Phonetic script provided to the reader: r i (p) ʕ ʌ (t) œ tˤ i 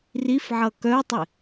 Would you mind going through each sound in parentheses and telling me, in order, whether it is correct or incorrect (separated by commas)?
incorrect, incorrect